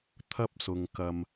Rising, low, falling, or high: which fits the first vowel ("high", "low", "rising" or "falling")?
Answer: high